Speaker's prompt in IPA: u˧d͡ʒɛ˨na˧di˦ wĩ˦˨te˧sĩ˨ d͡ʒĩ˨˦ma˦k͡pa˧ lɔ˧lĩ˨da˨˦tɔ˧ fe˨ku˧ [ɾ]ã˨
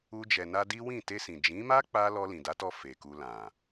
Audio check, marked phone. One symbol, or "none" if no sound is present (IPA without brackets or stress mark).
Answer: l